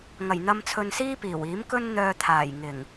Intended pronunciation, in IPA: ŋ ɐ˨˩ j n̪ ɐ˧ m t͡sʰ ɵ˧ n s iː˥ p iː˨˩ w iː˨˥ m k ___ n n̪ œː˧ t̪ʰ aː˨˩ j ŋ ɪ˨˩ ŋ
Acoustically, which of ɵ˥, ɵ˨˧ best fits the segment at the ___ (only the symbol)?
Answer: ɵ˥